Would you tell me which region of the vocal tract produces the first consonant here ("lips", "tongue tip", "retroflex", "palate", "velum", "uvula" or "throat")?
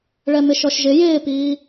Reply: retroflex